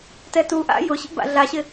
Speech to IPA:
t ɛ t u ʔ a̰ j ʊ ɕ ḭ b a̰ ɮ a ɕ ɪ

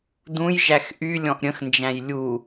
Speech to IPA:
d ũ j ʒ æ x ʔ y lʲ ɔ̃ ʔ ɾʲ ə̃ x n d͡ʒ æ̃ j lʲ u

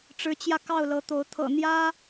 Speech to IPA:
ʈ͡ʂ ɻ̩˨˦ t͡ɕ j ä˧ k ɑ˥˨ ʊ̯ l ɤ˨˦ t̪ o˨˦ ʊ̯ t̪ʰ ɤ̰˨˩ n̪ j ä˦

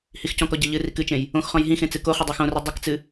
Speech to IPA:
h i x c ɔ̃ k ɔ ɟ e ʎ ɨ r i k ɨ t͡ʃ ẽ j | õ x χ ɔ̃ j ɦ ĩ x ẽ t͡s ɨ k o χ ɨ dˤ e x õ r i dˤ ɨ k t͡s ɨ

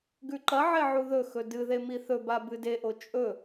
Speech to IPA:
ɡ ʉ ǃ ɐ ʕ e ʕ u ð ɵ x ɵ d ɨ ð e m i θ ɵ b a b ɨ d e ʔ o t͡ʃʼ ɵ

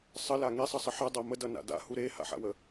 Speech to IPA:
sˤ ə l a ŋ e sˤ ʌ sˤ ə ħ a dˤ a m ə d ʌ n a̰ d a̰ h u ɾ e h a̰ ħ a̰ w ə

